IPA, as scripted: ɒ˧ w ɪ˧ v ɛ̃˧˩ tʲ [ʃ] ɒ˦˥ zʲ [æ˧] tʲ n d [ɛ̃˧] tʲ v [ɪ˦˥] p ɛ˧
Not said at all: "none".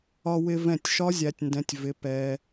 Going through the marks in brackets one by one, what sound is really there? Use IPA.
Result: ʃ, æ˧, ɛ̃˨˥, ɪ˨˥

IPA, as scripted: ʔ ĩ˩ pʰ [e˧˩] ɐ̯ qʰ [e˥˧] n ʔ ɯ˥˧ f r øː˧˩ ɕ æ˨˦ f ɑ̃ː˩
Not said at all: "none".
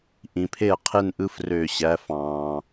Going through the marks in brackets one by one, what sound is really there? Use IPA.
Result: e˧˩, e˥˧

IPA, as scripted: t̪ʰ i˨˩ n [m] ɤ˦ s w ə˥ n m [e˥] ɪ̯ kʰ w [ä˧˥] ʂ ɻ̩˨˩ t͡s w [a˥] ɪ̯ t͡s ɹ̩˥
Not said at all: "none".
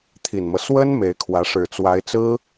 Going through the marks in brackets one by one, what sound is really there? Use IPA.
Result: m, e˧˥, ä˧˥, a˧˥

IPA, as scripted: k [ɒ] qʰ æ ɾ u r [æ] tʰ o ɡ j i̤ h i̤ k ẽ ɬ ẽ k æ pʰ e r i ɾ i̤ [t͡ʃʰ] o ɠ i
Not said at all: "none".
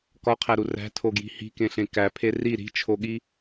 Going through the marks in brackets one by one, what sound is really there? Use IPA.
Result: ɒ, æ̤, t͡ʃʰ

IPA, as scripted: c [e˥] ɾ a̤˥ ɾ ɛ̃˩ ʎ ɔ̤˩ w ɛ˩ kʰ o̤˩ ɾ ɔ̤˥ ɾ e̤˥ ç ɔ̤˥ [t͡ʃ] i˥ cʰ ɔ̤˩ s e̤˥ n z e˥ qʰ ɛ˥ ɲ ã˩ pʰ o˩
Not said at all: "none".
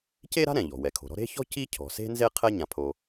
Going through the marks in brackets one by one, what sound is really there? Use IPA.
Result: e˥, c

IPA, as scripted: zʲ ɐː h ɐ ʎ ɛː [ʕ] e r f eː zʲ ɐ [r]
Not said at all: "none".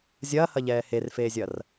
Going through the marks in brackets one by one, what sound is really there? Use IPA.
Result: h, r

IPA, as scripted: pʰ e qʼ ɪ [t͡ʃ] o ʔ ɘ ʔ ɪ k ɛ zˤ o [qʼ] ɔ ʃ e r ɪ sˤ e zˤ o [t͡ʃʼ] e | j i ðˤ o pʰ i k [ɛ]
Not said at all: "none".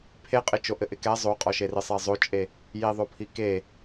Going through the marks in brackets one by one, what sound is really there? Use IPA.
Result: t͡ʃ, qʼ, t͡ʃʼ, e

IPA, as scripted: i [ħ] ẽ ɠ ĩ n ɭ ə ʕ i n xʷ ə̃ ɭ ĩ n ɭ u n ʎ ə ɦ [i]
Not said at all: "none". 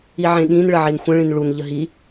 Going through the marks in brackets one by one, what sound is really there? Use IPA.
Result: ʕ, i

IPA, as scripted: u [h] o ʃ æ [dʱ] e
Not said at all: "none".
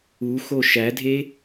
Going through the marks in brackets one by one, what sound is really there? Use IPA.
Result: x, dʱ

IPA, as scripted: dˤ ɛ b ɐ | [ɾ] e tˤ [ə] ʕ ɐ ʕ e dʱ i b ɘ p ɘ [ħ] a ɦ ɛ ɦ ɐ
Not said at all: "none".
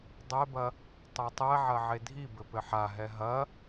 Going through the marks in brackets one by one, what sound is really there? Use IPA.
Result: tˤ, ɛ, ħ

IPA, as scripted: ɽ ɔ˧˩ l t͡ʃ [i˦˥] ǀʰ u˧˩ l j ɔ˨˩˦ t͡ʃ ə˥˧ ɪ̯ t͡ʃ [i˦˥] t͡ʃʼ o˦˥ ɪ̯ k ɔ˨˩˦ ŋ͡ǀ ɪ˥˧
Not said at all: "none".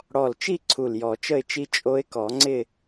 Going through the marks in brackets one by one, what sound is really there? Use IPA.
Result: i˥˧, i˦˥

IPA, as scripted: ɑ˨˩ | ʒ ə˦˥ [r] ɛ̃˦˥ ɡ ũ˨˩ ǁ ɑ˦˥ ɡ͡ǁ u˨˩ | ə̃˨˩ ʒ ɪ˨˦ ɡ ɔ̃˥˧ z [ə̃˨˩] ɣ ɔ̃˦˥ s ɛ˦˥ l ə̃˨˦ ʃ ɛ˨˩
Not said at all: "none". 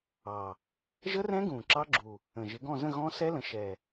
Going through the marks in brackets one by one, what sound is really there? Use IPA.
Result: r, ə̃˥˧

